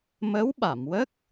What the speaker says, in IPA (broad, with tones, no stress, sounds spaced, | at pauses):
m ə˧˥ w ɓ a˨˩˨ m w ə˦˥ k̚